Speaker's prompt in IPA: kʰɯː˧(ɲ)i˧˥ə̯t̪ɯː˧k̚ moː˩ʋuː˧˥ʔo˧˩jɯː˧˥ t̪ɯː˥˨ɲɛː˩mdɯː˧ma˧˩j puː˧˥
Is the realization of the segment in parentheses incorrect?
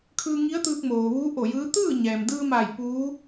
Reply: yes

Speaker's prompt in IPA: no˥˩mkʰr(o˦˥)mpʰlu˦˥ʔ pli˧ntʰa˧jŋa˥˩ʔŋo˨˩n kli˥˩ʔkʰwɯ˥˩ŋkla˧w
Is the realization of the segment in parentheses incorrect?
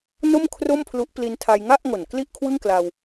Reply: yes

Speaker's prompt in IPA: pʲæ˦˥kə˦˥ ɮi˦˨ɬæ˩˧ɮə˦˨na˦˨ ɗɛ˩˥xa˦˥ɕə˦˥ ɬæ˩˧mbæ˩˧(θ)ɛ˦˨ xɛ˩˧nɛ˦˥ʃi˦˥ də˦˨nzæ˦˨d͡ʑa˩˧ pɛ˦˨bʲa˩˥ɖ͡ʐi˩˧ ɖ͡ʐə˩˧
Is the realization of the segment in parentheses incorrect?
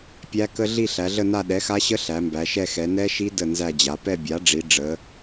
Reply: yes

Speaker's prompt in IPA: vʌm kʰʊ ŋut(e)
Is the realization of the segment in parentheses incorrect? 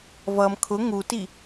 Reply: yes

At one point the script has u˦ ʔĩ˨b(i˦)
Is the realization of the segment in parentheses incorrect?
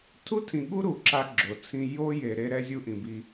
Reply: no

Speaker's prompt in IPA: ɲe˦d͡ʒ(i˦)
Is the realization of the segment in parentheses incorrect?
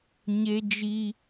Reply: no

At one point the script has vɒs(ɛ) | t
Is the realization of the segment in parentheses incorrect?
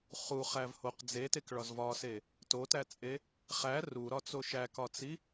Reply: yes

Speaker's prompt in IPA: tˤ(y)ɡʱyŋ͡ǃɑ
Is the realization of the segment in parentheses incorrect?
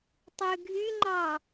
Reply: yes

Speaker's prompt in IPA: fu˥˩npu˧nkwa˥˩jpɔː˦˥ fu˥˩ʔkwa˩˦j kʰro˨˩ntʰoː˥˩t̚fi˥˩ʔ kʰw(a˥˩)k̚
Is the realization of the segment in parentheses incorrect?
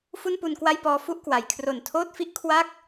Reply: no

